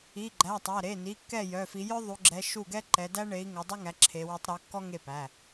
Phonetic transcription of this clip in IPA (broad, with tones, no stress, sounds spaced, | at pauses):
i˩˧˩ ɡ͡ǃ æ˩˧˩ tˤ æ˩˧˩ ɾ e˩˧˩ n i˩˧˩ kː ɛ˥˩ j œ˩˧˩ f i˨˦ j œ˥ ðˤ u˨˦ ɡ͡ǁ ɛ˨˦ ʃ u˥˩ ɡ ɛ˥ ǃ ɛ˨˦ d æ˥ ɳ e˨˦ i̯ ŋ œ˨˦ dˤ œ˥ ŋ æ˨˦ ǁʰ e˨˦ w œ˨˦ tˤ ɾ ɔ˨˦ kː ɔ˥ ŋ e˥˩ p æ˩˧˩